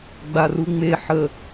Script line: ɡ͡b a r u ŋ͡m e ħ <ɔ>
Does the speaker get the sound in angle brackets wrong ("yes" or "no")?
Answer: yes